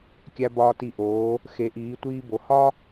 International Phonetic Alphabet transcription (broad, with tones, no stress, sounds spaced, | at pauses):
kʲ æ˧ b ɒː˧ t i˧˩ ʔ oː˩˧ | x e˩˧ ʔ iː˩˧ tʷ iː˧ b o˩˧ h ɒ˥